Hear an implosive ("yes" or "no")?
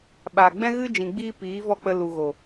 yes